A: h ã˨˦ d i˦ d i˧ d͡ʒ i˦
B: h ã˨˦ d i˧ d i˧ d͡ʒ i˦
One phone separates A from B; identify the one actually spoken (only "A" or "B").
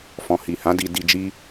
B